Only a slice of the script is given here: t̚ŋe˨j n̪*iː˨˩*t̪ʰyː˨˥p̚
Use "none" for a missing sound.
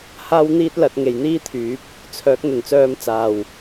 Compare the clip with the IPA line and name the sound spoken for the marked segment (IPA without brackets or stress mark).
iː˥